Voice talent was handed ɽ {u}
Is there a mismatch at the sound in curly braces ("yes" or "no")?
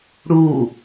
no